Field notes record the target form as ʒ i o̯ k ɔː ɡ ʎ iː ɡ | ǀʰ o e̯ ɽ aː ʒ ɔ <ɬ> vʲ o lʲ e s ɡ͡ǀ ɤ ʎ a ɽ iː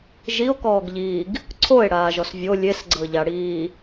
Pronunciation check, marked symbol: incorrect: s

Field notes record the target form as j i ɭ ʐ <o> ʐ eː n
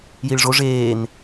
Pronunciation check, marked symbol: correct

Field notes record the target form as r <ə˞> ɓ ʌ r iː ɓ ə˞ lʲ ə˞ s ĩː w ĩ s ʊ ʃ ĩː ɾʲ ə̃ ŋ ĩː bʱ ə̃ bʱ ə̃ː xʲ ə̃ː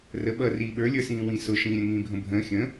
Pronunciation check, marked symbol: incorrect: ə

